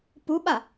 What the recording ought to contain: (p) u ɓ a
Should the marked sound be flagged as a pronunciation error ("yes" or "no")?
no